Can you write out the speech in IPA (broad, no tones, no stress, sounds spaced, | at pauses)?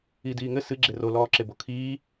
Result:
i d iː ŋ ɘ s ɨ ɡ͡ǁ e r o l ɔː ǁ e b o kʰ iː